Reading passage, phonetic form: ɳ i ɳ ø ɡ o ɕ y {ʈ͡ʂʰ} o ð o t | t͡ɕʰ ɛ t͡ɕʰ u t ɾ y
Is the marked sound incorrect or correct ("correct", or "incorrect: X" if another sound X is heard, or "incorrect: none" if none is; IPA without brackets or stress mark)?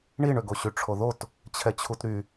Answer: correct